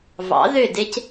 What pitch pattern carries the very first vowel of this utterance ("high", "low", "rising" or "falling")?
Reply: rising